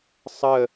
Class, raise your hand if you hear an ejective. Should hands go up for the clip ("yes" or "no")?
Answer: no